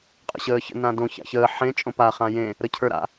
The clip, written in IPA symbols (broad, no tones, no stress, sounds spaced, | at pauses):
qʼ ə̰ ɕ əː ç ə̰ n ã d õ ç a̰ ç əː ħ ẽ t͡ʃʼ õ p a χ ã j ẽ | ɾ ə cʰ ə˞ ɾ a̰